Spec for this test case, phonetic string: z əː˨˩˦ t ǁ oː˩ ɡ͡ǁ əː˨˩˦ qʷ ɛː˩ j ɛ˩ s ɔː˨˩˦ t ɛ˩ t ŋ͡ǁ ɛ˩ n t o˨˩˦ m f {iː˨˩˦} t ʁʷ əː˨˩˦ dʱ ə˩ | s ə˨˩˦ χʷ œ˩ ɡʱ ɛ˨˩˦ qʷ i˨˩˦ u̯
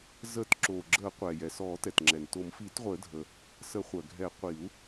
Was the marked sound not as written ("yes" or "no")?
no